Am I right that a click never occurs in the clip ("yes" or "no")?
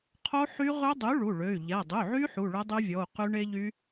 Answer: yes